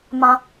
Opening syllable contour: high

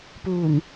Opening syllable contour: low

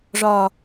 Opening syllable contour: low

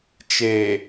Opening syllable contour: low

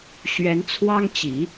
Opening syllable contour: rising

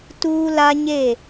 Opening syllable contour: high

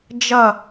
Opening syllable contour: falling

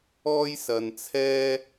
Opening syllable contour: high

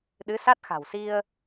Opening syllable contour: rising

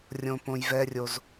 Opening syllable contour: low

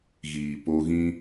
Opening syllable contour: low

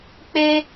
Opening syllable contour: high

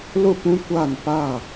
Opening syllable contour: falling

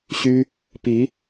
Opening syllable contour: high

